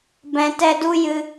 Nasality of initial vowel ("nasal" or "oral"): nasal